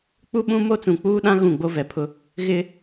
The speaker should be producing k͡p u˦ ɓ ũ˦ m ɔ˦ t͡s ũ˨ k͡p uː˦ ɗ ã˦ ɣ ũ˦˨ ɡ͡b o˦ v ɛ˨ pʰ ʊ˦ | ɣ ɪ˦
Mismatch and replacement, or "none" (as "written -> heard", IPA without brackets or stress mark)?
ɔ˦ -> o˦